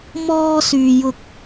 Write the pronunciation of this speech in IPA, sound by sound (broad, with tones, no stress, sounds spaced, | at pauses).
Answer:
m ɔː˧ s yː˨ j ʊ˧ k̚